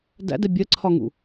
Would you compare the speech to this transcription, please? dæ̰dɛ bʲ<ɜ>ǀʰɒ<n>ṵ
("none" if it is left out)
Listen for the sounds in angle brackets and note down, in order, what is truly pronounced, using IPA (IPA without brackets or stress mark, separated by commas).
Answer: ɜ, ŋ